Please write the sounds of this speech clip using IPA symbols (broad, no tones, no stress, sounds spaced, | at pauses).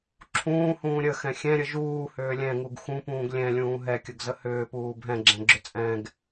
ǁʰ ũː h ũː ɾʲ ə x ɛ̃ xʲ ɛ̃ ɾʲ ə ʒ uː h ʏː lʲ ɛ̃ ŋ u ɡ x ũ p ũː ɡ lʲ ɛ̃ lʲ ũː ɦ ɛ kʲ ə ɡ z ə h ʏː p uː bʱ ɛ̃ ɡ͡ǁ ɛ̃ ɡ͡ǁ ʏ t͡sʼ ɛ̃ ɡ